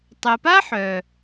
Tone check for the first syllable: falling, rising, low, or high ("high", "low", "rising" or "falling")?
low